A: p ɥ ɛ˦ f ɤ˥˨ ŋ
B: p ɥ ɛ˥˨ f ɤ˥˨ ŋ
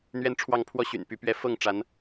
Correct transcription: B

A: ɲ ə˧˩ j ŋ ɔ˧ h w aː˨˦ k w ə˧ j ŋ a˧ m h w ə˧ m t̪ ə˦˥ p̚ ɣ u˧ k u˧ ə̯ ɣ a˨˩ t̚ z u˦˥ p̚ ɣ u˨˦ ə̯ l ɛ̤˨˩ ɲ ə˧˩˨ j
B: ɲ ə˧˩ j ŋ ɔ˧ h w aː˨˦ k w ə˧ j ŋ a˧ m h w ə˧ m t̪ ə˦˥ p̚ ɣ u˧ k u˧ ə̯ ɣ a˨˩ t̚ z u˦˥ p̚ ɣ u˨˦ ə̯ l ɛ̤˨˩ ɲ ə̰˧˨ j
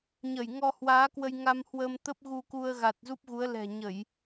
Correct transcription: A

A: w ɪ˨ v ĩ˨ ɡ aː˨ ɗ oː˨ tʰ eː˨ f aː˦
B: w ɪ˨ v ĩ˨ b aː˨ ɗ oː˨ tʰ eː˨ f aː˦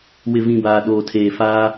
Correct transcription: B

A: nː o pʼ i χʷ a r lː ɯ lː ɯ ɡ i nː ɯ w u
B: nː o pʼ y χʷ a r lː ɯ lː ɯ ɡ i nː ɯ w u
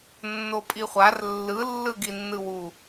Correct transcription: A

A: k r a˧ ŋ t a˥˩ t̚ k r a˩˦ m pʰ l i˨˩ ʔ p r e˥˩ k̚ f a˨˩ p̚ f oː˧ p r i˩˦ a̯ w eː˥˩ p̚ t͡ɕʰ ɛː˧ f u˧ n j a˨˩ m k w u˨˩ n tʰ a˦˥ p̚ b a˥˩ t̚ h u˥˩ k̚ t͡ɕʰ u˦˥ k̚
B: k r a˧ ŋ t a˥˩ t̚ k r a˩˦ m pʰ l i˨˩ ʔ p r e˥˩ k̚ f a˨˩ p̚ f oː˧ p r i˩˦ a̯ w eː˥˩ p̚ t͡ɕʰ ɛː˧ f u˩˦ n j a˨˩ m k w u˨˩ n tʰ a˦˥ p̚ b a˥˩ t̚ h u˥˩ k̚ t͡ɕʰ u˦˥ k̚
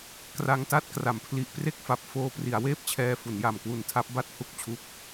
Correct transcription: B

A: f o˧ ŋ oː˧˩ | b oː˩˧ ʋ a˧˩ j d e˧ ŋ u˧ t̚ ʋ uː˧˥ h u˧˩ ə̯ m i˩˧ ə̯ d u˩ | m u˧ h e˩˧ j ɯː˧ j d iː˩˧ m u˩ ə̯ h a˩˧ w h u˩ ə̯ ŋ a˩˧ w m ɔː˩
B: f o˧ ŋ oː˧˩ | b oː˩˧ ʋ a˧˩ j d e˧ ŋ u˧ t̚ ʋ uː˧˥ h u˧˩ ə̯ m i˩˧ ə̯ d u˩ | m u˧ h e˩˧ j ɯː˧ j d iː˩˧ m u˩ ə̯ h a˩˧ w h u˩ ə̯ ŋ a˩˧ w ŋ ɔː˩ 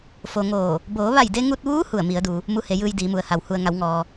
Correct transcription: B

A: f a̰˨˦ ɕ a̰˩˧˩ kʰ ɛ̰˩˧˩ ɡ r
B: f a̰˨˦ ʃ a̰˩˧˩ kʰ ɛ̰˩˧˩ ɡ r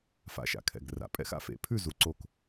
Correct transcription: B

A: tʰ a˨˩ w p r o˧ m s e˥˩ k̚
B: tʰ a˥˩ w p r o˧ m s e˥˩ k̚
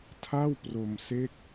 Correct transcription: B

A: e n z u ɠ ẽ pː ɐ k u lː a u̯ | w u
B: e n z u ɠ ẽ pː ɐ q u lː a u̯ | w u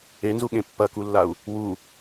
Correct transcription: A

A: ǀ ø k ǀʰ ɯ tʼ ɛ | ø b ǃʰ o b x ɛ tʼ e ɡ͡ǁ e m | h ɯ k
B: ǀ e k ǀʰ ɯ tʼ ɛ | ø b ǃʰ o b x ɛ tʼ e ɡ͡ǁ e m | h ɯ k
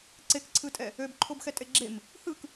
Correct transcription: B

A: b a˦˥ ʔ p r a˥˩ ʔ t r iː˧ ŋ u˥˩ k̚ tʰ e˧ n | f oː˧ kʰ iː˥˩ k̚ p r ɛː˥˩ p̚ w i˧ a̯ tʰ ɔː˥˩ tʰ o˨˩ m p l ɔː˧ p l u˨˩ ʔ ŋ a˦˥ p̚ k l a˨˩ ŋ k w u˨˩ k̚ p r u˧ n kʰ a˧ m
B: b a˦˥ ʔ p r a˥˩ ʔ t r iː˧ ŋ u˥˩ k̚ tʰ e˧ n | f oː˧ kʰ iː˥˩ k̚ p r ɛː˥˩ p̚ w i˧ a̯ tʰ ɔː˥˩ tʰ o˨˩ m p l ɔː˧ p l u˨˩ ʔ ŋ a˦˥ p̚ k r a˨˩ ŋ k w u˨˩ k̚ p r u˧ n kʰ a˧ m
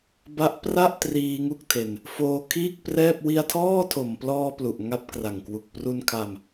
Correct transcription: B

